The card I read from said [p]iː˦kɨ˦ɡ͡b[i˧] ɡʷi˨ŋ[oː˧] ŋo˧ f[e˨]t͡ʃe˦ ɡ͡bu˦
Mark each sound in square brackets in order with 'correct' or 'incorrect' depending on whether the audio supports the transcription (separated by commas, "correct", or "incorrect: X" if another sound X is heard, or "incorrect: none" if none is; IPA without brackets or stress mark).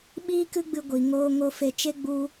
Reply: incorrect: ɓ, incorrect: ɨ˧, correct, incorrect: e˧